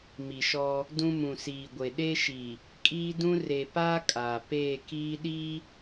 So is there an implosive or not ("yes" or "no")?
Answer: yes